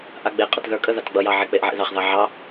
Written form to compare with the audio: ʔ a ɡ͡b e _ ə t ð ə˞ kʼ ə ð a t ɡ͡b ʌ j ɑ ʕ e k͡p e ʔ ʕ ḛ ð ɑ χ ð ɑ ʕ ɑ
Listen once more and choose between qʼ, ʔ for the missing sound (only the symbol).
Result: qʼ